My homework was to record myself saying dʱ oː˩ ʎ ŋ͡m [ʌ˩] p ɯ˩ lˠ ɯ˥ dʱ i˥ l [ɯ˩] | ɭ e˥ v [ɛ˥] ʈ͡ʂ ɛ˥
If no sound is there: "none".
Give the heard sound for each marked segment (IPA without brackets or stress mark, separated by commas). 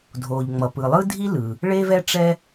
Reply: ʌ˩, ɯ˩, ɛ˥